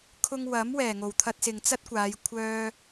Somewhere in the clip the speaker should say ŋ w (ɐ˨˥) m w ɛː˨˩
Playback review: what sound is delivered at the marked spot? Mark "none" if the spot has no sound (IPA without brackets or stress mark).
ɐ˨˥